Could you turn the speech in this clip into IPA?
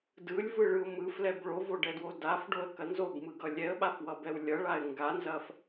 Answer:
dɯlʲvɯɭɯʊ̯ mɯflɛb ɭovoɖɛdwo dafɖoə̯kɐ nzobmɯɡʌ lʲɛə̯ɓafwʌbɛw lʲʌɭaɪ̯ ŋɡanzɐf

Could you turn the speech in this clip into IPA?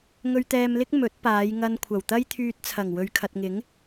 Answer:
ŋɵ˧ɥt̪ɛː˧mlɪ˥k̚ mɵ˨˥t̚paː˨˧jŋɐ˧n kʷʰɐ˨˩wt̪ɐ˥jt̪ʰyː˧t̚t͡sʰɐ˨˩ŋ wɵ˨ɥkʰɐ˨t̚ŋɪ˨˥ŋ

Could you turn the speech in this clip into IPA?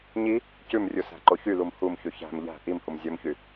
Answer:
ɲi | cʉmrʲusæ̤ǃo çylum humçʉ çæ̤m ʎæ̤ ʔimhum zʲɵmçy

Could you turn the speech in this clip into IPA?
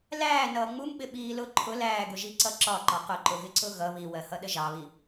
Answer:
læː nʌːŋ͡mumɓɪ ɓiːlʊ ǃʰʊ læːɡʊʒiǀʌ ǁɒǃɒ qʊǃʊɣɪǀʊ ɣʌ βiwɜhʌ ɗəʒɑβi

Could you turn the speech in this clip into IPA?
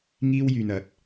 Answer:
ŋiː˥wjyː˧n ɐ˨˥t̚

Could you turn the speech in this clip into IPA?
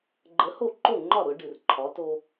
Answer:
ɡ͡ǃə˨˥ho˥˩ǃo˥˩ŋ͡ǃɒ˥˩ ɾʊ˨˥ɖɨ˨r ǃʰɒ˨˥to˦

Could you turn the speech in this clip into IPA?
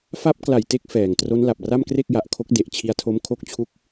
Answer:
fa˦˥p̚ kla˨˩jte˦˥k̚ fɛː˨˩ŋ tro˦˥nla˨˩p̚ ra˥˩mkre˥˩k̚ja˨˩ʔkʰo˦˥k̚ de˨˩ʔt͡ɕʰi˧a̯tʰo˦˥m kʰo˦˥k̚t͡ɕʰu˦˥k̚

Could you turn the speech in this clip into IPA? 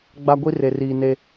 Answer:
ɡ͡ba˦ɡʷi˦ re˨riː˨ ne˦

